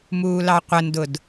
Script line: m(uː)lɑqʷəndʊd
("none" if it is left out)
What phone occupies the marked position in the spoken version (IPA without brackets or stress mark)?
uː